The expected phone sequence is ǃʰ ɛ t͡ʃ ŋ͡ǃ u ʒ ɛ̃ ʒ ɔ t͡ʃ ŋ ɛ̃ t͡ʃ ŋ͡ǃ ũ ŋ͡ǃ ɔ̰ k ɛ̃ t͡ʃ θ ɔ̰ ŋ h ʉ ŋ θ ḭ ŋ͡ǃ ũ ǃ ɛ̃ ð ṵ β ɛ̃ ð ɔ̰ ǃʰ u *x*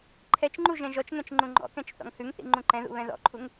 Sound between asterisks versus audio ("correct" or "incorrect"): incorrect